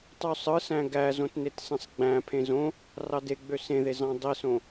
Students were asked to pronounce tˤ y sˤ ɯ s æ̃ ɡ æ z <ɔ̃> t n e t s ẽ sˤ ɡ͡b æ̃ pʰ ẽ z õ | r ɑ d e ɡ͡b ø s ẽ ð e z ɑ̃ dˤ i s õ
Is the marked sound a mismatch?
yes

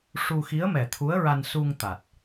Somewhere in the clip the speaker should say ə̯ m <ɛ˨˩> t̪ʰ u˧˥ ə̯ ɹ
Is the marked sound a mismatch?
no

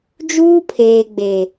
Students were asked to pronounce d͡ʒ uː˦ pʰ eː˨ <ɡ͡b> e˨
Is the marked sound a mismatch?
no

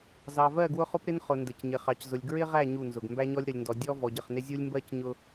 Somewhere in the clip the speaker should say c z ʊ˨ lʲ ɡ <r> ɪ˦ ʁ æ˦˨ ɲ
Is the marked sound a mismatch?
yes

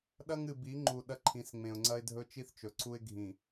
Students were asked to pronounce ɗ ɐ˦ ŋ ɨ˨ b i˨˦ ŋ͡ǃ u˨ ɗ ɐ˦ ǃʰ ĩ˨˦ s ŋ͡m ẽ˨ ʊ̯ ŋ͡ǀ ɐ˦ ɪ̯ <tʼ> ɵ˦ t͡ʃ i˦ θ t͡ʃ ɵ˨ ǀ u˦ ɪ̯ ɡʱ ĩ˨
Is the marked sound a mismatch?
yes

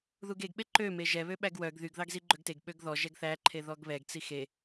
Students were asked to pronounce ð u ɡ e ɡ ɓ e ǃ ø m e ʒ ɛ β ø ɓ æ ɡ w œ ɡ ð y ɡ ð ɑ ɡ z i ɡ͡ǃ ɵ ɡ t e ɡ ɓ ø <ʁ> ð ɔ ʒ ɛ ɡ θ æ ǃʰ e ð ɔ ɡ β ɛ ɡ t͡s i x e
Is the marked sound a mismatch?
yes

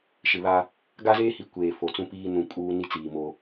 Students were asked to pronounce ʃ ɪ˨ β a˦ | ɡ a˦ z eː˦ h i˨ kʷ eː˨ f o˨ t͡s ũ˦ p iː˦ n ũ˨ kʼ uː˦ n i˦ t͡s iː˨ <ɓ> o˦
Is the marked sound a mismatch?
yes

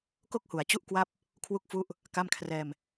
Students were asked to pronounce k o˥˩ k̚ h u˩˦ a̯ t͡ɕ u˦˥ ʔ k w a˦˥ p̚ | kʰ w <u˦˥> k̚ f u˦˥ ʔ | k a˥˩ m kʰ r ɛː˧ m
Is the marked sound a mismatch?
no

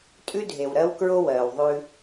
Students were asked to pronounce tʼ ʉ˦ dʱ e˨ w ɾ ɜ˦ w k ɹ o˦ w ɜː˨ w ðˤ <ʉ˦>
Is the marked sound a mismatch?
no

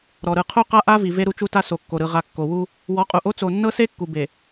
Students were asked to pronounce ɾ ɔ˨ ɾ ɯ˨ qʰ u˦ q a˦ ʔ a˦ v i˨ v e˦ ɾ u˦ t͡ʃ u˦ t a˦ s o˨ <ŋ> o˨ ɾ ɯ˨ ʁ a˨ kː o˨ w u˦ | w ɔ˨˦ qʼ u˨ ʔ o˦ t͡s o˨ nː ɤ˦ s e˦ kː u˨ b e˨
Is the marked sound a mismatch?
yes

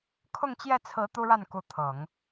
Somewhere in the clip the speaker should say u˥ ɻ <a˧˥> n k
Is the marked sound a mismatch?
yes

